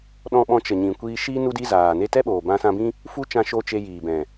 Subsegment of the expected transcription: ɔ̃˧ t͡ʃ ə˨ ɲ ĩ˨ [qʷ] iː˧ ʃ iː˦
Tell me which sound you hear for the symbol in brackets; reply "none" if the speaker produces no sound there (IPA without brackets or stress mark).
kʷ